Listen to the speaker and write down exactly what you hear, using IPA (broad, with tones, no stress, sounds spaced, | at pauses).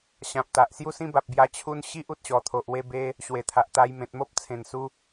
ɕ ã˨ p̚ t̪ a˨ ʔ s j u˥˧ s ĩ˥˧ b a˨ p̚ b j a˧ t͡ɕʰ u˦ n ɕ i˦ ʔ u˨ t̚ ɕ ɔ˨˩ t̪ʰ o˨ ʔ w e˧ b e˧ | ɕ w e˨˩ t̪ʰ a˨ ʔ t̪ a˧ j m ẽ˨ t̚ m o˦ p̚ t͡sʰ ẽ˨˩ n s u˧